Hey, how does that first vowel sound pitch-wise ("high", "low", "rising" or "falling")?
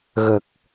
low